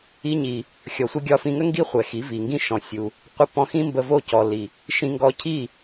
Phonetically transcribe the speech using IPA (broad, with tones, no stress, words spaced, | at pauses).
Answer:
i˧ɲi˨ | xʲɔ˨sʷi˧ɡʲɒ˧ fĩ˧ŋə˦ ŋɡi˦ χʷɛ˨xi˨˦vi˨ŋɡĩ˦ ʃɔ̃˧sʲu˧ | qʷə˧ pɔ̃˧xĩ˦mbə˧vo˦˨ cɔ˨li˨ | ʃĩ˧ŋɡɔ˧cʰi˦˨